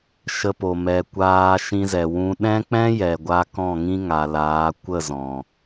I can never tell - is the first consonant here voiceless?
yes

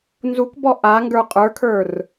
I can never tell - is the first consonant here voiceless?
no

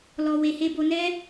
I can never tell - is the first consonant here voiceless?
no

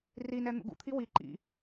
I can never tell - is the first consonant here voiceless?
no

